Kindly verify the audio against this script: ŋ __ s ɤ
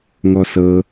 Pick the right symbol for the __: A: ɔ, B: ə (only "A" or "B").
A